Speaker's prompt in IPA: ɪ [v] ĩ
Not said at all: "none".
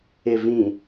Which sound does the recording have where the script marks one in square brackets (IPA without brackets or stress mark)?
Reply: v